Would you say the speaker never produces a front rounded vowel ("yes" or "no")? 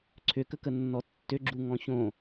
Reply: no